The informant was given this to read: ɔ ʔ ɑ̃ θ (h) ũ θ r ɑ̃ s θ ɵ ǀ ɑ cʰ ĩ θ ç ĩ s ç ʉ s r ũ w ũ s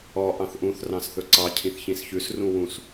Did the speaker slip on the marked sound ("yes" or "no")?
yes